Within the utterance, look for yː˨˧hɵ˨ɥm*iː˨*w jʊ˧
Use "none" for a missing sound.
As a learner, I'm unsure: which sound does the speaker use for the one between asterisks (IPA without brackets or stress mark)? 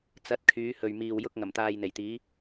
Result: iː˨